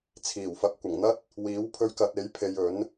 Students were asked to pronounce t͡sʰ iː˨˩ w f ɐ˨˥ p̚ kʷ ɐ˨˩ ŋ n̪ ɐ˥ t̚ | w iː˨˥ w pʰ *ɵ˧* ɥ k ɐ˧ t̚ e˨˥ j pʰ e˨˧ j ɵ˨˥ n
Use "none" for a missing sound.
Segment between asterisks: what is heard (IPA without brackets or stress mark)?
ɵ˧